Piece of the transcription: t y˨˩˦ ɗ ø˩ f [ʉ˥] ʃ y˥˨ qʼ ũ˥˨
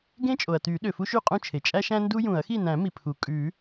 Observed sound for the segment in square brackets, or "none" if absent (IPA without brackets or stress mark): u˥